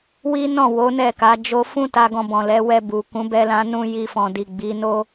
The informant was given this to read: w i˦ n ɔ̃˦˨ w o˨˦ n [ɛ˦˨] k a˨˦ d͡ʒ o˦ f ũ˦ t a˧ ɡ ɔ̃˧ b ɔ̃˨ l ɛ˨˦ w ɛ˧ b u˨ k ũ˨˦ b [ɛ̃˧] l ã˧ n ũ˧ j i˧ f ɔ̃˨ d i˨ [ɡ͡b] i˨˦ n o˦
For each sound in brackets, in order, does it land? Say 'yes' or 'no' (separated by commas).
yes, no, yes